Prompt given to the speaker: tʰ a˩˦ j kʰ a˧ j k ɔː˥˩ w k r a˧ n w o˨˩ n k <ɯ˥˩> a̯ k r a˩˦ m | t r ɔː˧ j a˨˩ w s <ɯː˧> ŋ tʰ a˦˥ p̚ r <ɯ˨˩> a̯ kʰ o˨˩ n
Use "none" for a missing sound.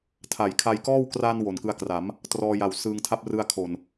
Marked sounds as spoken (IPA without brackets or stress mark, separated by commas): ɯ˧, ɯː˧, ɯ˧